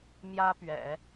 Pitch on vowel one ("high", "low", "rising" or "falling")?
high